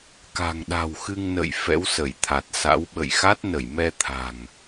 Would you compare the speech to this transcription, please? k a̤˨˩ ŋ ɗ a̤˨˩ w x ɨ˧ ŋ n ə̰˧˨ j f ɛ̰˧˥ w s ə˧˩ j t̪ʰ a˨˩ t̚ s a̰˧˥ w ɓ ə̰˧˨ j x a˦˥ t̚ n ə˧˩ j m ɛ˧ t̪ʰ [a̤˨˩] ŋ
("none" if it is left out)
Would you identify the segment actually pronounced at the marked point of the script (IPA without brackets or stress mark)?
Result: a̤˨˩